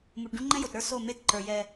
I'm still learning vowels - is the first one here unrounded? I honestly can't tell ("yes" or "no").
no